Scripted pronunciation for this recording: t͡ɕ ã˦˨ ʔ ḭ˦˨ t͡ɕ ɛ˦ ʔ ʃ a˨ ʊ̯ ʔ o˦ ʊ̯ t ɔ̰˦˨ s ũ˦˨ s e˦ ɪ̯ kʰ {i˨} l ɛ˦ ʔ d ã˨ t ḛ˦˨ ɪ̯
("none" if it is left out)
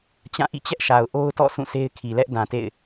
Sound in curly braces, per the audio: i˨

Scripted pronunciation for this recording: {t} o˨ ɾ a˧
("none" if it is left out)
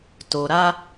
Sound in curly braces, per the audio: t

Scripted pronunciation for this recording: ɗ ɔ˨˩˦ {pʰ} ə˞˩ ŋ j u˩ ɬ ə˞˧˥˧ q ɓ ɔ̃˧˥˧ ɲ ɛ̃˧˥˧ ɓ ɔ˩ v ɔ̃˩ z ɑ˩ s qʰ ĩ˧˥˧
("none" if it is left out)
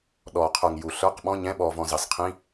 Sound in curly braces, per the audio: qʰ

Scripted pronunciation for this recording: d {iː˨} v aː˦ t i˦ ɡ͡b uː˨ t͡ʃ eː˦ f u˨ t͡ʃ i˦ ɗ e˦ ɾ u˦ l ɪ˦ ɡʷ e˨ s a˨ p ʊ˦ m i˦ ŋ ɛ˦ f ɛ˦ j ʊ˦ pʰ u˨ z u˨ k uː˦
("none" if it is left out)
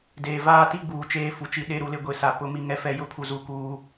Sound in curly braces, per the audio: eː˨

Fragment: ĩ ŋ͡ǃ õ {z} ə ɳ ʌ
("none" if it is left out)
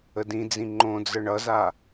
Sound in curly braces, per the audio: d͡z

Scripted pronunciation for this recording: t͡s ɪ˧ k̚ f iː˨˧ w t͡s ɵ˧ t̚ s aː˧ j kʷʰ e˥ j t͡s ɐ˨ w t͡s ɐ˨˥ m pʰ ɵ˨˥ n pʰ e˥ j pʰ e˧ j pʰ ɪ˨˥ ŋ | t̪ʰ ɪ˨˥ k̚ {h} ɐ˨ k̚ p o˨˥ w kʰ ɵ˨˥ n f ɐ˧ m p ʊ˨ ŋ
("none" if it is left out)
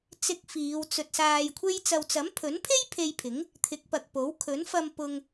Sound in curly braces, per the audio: p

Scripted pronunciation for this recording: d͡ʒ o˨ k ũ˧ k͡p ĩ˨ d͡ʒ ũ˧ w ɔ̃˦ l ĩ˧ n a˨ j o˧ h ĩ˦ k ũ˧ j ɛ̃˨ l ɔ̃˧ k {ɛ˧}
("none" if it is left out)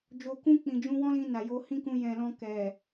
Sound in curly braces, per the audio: ɛ˨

